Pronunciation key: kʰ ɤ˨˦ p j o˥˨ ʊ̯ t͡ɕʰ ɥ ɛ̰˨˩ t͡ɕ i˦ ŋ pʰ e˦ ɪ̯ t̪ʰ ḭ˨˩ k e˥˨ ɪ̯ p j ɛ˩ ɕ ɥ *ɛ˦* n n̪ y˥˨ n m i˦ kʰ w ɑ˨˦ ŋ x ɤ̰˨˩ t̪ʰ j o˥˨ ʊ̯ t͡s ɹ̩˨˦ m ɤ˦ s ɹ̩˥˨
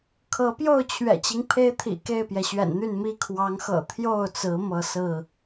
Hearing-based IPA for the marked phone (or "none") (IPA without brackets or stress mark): ɛ̰˨˩